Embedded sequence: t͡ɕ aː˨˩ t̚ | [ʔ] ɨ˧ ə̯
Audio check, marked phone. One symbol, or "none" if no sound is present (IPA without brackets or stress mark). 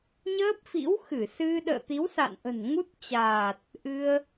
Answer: ʔ